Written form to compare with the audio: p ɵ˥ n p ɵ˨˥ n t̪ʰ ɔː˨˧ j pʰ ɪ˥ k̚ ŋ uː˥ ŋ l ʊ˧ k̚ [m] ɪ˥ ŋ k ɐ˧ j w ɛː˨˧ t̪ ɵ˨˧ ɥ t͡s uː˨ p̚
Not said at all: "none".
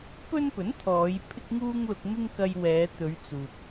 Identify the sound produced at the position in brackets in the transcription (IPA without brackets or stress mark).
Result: m